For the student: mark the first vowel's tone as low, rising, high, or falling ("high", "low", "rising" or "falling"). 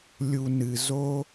low